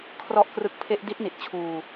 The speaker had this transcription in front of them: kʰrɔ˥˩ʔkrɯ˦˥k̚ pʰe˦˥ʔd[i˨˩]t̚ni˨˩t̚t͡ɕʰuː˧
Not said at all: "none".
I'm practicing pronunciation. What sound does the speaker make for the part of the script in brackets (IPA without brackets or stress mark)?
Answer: i˦˥